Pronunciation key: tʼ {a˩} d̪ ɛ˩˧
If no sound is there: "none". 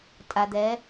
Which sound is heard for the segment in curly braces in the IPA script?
a˩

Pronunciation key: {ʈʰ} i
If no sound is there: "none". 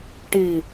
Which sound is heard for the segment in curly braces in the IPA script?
ʈ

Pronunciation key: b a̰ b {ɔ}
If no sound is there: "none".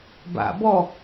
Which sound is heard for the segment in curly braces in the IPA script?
ɔ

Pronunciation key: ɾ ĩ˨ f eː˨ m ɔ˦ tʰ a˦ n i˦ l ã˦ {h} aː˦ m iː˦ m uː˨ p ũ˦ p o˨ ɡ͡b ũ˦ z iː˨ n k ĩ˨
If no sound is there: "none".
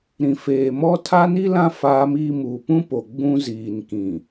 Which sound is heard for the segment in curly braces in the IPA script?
f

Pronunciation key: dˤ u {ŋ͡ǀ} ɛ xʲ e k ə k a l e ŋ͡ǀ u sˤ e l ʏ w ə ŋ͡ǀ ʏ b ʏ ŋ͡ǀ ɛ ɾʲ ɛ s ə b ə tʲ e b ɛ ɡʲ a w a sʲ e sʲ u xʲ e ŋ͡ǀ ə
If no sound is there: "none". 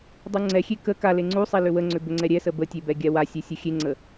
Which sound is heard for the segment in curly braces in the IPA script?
ŋ͡ǀ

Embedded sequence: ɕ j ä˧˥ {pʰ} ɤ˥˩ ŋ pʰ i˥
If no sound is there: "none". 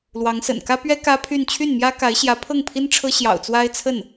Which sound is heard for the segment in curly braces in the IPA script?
pʰ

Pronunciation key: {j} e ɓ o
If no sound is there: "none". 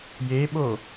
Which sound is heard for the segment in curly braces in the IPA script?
j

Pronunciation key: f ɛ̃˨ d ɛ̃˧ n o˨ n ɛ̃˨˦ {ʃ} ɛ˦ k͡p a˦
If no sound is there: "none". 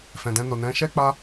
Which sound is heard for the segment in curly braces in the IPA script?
ʃ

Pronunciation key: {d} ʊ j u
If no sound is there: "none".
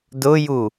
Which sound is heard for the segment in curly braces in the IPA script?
d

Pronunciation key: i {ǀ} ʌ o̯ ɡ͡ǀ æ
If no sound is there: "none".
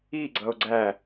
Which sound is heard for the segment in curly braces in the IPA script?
ɡ͡ǀ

